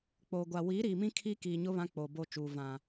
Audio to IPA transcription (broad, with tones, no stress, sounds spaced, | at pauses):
k͡p oː˨ ɡʷ a˨ w i˨˦ ɾ iː˨ m ĩ˦ kʰ i˦ k iː˨ ɲ ʊ˦ β ã˦ k͡p o˨ b o˨ t͡ʃ uː˨ v ã˨